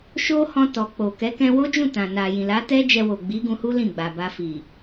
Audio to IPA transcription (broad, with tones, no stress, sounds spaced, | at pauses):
ʃ o˦ h ɔ̃˧ t ɔ˨ k͡p o˨ k ɛ˨˦ k ɛ̃˧ w o˦ d͡ʒ ũ˦˨ t ã˨ n a˨ j ĩ˨ l a˨˦ t ɛ˦ d͡ʒ ɛ˧ w o˨ ɡ͡b i˨˦ ɡ ũ˧ h u˦ l ĩ˦˨ ɡ͡b a˨ b a˧ f i˨